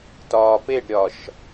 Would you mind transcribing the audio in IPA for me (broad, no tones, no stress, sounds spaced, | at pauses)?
t ɒː p e ɖ ɾʲ ɒ ʃ